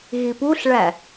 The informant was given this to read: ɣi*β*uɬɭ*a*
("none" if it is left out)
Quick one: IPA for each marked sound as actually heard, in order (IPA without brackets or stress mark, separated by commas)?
p, æ